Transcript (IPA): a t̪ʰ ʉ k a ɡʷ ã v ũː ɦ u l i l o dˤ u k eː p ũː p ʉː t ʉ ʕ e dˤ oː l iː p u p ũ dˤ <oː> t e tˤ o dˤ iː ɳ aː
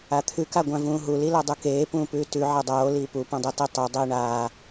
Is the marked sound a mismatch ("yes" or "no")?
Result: yes